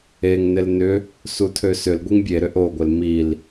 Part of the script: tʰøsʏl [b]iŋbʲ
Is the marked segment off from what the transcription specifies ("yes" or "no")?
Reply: yes